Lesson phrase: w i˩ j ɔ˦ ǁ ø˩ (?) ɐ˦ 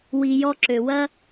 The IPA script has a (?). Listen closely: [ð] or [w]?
w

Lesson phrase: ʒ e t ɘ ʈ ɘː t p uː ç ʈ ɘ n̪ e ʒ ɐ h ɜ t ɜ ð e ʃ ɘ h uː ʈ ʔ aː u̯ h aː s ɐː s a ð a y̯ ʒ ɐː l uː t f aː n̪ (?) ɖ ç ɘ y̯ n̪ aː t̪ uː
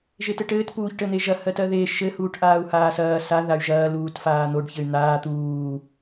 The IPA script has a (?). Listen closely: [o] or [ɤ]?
o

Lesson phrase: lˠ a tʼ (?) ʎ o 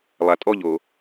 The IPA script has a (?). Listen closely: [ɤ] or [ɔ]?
ɔ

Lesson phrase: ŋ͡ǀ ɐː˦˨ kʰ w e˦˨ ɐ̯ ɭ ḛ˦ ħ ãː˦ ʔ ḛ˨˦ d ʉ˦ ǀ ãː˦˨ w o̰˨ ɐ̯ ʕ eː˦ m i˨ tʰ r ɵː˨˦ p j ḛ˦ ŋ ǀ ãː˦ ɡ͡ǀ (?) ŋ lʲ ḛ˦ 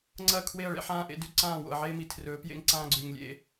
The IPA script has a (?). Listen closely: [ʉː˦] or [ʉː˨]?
ʉː˨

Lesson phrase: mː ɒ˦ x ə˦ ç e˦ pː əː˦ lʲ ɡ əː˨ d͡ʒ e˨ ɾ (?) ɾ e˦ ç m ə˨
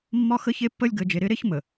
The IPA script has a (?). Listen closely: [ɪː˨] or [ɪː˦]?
ɪː˦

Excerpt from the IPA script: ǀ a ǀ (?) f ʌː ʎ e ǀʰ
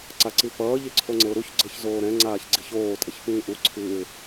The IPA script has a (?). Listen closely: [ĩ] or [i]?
i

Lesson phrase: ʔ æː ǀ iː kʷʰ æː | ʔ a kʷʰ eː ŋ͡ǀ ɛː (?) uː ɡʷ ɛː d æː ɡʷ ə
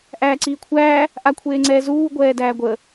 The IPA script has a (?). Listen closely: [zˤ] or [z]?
z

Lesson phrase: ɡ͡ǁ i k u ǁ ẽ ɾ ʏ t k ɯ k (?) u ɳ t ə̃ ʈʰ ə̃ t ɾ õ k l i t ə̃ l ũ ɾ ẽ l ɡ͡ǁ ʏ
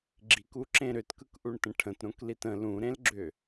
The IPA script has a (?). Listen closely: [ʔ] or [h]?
ʔ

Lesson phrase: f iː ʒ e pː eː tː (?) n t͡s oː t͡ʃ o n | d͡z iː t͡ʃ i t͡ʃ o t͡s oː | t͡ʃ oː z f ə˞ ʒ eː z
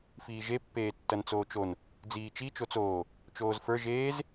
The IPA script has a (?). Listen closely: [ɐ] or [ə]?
ɐ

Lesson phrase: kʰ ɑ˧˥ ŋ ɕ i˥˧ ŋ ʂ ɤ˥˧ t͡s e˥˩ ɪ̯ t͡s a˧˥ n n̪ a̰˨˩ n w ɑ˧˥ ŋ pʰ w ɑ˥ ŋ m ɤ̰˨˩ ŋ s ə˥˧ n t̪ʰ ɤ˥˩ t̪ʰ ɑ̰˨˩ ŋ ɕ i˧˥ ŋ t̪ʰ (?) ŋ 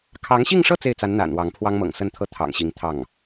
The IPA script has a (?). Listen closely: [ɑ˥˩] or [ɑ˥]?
ɑ˥˩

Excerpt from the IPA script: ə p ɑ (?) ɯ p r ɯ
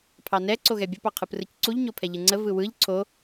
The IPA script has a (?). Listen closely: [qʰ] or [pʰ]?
qʰ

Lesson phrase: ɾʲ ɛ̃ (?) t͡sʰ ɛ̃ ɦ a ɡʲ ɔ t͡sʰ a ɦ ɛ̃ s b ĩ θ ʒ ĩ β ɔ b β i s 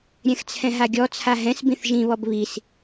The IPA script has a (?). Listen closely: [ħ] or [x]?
x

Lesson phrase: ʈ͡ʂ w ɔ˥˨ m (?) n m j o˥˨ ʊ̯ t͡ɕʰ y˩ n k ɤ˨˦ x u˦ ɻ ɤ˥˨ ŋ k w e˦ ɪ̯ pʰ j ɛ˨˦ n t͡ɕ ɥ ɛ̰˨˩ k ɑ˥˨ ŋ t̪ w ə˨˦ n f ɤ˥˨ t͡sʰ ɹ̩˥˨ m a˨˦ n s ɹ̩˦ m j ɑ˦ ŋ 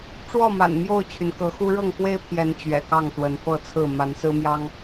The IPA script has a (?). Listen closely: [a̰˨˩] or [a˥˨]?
a̰˨˩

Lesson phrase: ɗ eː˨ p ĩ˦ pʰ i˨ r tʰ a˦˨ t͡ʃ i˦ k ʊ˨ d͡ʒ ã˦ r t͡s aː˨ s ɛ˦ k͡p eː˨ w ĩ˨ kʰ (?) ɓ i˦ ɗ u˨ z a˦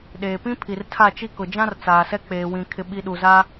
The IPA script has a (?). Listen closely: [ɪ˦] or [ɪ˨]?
ɪ˦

